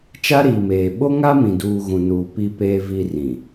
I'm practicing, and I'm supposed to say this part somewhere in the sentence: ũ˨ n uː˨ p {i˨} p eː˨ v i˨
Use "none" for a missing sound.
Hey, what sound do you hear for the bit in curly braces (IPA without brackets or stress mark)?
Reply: i˨